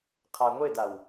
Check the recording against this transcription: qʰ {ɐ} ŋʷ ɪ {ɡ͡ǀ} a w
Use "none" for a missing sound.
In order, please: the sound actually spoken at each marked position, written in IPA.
a, d

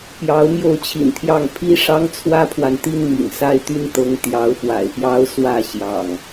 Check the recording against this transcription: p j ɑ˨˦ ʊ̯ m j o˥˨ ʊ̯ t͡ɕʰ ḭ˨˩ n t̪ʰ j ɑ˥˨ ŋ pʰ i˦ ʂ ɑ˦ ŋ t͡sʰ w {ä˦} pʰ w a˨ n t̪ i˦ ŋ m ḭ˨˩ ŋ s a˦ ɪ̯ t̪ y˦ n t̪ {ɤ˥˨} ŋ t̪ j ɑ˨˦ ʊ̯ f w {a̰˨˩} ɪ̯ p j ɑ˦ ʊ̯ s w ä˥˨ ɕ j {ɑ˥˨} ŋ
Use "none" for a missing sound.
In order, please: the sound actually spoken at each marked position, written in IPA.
ä˦, ɤ˨˦, a̰˨˩, ɑ̰˨˩

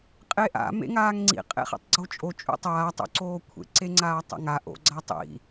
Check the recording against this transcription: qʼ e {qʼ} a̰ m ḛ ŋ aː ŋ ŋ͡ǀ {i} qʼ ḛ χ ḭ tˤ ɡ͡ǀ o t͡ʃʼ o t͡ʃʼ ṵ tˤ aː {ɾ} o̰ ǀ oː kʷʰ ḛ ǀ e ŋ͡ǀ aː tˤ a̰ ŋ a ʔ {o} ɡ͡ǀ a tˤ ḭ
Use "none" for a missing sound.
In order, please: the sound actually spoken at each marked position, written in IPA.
ʔ, ḭ, tˤ, o̰

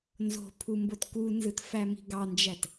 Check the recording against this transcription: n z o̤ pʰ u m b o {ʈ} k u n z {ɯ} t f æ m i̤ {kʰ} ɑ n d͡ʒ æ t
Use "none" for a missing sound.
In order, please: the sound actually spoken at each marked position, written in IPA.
t, ɯ, ɡ

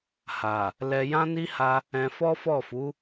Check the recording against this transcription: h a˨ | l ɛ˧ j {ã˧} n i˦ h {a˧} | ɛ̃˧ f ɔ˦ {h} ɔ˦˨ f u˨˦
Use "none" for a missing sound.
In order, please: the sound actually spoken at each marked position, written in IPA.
ã˦, a˧, f

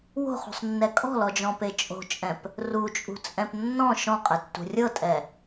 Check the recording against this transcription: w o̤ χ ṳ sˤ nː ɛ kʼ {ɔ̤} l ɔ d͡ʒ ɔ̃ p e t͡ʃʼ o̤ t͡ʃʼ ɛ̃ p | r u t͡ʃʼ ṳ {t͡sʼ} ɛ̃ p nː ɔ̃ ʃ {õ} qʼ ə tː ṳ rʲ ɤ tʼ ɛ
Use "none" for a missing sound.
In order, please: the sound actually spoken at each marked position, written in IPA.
ɔ̤, t͡sʼ, ɔ̃

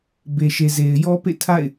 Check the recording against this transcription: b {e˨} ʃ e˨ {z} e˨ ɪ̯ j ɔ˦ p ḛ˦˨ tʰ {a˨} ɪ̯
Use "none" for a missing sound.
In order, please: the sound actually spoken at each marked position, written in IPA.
e˨, z, a̰˦˨

